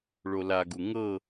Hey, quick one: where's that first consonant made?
retroflex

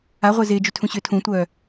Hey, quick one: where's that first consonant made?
uvula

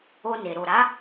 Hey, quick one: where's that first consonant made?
tongue tip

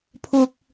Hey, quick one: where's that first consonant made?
lips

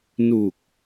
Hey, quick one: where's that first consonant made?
tongue tip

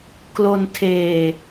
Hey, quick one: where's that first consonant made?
velum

